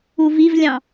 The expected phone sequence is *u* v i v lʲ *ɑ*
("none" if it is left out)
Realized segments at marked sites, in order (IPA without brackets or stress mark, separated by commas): u, ɑ̃